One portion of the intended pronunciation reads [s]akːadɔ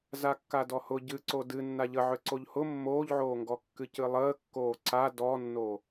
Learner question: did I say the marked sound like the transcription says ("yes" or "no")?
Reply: no